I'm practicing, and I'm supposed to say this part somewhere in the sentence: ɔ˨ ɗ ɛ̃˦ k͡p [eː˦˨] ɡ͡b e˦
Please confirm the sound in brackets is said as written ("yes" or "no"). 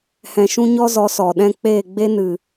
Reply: yes